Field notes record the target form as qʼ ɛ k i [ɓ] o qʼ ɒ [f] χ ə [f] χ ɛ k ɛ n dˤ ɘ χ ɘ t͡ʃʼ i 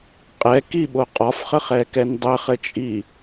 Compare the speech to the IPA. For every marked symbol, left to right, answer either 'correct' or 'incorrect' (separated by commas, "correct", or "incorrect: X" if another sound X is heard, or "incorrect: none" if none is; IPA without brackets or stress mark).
correct, correct, incorrect: none